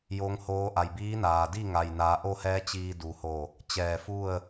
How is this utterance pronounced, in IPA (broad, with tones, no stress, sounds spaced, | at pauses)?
j o˧˥ ŋ h oː˧˥ ʔ a˩ j b iː˧˥ n aː˩ d i˥˨ ŋ a˩ j n aː˩˧ ʔ o˥˨ h ɛː˧˥ t͡ɕ iː˧ d u˩ h o˧˩ | t͡ɕ ɛː˧˩ f u˥˨ ə̯